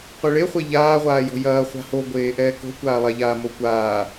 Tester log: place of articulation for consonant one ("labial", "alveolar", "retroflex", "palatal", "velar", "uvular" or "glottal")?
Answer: uvular